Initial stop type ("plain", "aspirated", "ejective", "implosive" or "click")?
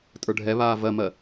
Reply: ejective